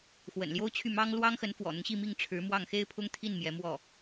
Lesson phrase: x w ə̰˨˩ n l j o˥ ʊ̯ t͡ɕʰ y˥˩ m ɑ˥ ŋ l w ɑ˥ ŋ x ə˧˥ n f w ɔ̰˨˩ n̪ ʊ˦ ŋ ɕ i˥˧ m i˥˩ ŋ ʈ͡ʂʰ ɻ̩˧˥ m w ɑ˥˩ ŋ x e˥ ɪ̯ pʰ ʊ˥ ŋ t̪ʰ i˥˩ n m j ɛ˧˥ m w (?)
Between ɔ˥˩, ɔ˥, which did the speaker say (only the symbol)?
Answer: ɔ˥˩